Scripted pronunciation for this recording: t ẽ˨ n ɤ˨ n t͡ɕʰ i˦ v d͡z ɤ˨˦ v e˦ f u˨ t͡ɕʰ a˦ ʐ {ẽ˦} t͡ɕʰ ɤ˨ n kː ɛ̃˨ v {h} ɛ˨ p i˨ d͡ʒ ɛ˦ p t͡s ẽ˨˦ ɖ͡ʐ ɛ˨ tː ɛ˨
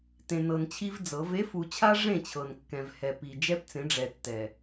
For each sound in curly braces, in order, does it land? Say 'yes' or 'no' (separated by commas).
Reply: no, yes